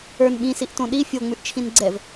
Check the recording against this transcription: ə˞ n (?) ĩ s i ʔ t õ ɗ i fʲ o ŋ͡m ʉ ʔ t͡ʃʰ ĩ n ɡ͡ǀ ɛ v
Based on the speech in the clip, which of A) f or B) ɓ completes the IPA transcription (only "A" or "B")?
B